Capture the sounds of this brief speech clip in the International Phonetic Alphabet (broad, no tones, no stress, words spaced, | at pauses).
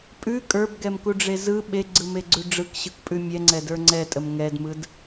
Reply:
pʼʉ kʼə˞bɡɛmkuɖ͡ʐe zɯ ɓeɡ͡ǀɯmeɡ͡ǀʉ ɖ͡ʐɯkɕɯkpʼʉ mʲɛŋ͡ǀɛdə˞ ŋ͡ǀɛtʼəm ŋɛdmɯd